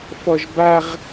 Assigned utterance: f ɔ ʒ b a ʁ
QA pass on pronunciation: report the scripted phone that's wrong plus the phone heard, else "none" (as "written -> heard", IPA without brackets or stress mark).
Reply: none